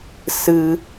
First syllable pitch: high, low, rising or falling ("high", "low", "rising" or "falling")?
high